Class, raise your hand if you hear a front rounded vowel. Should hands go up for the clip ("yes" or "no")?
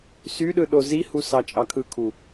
yes